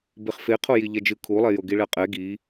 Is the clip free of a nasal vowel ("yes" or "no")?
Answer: yes